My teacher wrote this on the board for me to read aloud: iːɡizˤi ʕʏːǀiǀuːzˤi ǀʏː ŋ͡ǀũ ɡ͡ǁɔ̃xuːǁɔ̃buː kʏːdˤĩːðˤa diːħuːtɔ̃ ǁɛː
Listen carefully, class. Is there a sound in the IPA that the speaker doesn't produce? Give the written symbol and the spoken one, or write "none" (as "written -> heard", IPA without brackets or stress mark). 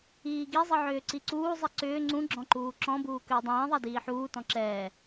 x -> ǃ